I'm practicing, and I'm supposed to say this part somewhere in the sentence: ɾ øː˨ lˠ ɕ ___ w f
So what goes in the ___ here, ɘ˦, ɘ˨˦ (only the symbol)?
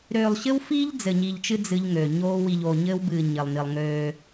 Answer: ɘ˦